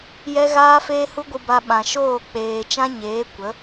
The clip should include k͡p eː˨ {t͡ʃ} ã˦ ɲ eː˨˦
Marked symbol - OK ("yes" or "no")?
yes